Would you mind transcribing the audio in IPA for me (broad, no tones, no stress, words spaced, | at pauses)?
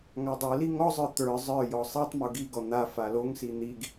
ŋadˤoli ŋɔzˤə˞ t̪ə˞ zˤə˞jɔ sˤitˤmo ɡiɡɔ n̪a faloŋsi n̪iɡ